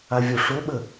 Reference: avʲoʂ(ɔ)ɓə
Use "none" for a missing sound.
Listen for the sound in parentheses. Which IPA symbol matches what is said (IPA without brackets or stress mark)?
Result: o